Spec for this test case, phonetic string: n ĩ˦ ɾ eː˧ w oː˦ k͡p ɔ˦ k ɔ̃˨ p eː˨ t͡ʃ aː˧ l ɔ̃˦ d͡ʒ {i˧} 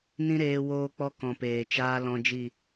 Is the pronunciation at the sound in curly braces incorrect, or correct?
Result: incorrect